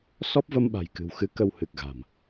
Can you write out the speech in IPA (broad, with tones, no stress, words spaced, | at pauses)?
sɔ˦˥p̚və˧mɓa̤˨˩jkɨ̤˨˩w xɨ˧kə˧w hɨ˨˩k̚ɣa̤˨˩m